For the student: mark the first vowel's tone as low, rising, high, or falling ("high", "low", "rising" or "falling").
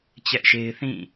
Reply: high